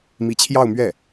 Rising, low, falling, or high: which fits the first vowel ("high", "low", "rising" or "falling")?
rising